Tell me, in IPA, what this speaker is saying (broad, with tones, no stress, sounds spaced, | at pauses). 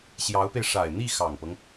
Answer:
ɕ j ɑ˧˥ ʊ̯ p e˧ ɪ̯ ʂ a˨˩ ɪ̯ n̪ i˥˩ x ɑ˨˩ ŋ p ɤ˦ ŋ